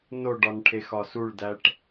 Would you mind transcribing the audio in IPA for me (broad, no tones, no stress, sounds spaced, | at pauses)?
n o ɖ ɒ n ʈʰ e x ɒ s u ɭ d æ ʈ